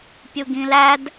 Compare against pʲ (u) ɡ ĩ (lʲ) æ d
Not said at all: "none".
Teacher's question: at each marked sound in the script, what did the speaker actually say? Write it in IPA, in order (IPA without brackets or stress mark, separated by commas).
u, l